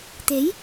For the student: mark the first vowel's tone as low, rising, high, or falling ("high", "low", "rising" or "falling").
rising